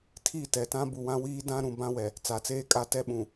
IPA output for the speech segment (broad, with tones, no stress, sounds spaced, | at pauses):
tʰ i˦˨ t ɛ˨ t ã˦ b u˨ w ã˦ w iː˦ d ã˦ ɾ ũ˨ b ã˦ w ɛ˨ | t͡s a˨ t͡s eː˦ kʼ a˦˨ t ɛ˦ ɓ ũ˨